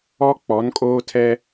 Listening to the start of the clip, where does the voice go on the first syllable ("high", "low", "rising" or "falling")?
high